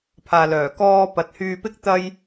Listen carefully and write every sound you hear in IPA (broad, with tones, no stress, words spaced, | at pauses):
pʰaː˨lœː˨˩ kɔː˧pɐ˨t̚hyː˧pɪ˥k̚ t̪ɐ˥j